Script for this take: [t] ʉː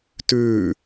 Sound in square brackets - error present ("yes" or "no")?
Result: no